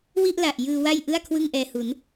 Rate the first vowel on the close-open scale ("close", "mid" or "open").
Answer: close